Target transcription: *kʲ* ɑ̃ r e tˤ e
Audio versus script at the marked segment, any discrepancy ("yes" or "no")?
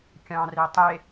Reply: no